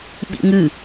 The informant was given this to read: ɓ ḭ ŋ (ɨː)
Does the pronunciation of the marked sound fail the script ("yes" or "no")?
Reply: yes